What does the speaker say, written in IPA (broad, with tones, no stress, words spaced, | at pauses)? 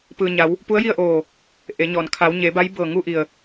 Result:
pɯː˩ɲa˩˧w | pu˧˥ə̯ji˥˨ə̯ʔoː˧˩ | ʔe˩˧ɲɔː˩n kʰa˩˧wɲe˩˧ba˧˥jbɤː˧˩ ŋu˥˨ʔi˧˩ə̯